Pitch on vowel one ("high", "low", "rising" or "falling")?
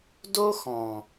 high